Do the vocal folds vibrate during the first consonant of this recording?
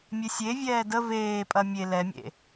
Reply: yes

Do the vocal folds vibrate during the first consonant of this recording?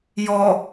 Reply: yes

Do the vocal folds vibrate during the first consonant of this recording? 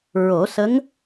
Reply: yes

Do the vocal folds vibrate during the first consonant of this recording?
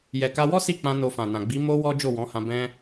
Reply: yes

